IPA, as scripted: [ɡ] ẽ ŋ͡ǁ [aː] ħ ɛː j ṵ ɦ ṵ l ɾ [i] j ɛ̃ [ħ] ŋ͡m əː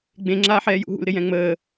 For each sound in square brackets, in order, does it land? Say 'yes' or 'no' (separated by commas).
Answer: no, yes, no, no